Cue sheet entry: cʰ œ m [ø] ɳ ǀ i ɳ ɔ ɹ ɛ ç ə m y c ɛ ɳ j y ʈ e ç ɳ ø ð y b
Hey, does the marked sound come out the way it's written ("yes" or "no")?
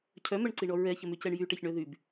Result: no